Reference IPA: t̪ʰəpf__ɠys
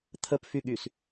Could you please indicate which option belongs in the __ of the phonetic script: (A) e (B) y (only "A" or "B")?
B